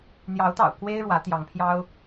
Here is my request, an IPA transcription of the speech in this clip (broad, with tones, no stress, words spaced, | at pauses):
n̪jɑ˨˦ʊ̯t̪ɑ̰˨˩ʊ̯ kwe˦ɪ̯ɻwä˨˦ t̪jɑ˨˦ŋpʰjɑ˦ʊ̯